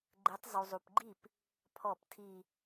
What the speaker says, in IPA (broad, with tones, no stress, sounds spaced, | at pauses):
ɡ͡ǃ e˨˦ tˤ zˤ u˨ zˤ u˨ p ɡ͡ǃ i˥˩ p | pʰ ɔ˥˩ p tʰ i˥˧